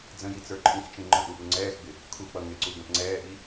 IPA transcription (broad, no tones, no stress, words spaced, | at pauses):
d͡zə̃ji t͡sə˞ǃʼĩxt͡ʃĩ ŋ͡ǃə̃ʔu ʔuŋ͡ǀɛːxɡ͡bɪ | kʰuk͡pʌ ŋɪǀu ɡə̃pŋ͡ǀɛːʔi